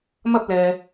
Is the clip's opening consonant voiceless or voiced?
voiced